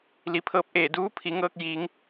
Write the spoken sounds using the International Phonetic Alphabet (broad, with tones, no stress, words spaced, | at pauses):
li˩pʰɤː˧p̚ ʔeː˧˩duː˧˥pʰi˩˧ŋɤː˧k̚ jiː˩˧ŋ